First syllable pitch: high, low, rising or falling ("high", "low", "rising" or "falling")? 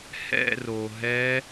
falling